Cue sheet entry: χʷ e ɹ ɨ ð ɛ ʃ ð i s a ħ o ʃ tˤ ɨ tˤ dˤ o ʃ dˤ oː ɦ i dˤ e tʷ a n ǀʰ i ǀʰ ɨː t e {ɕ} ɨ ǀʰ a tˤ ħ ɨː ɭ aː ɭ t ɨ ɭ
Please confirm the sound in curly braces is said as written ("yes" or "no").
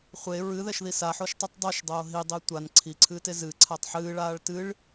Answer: no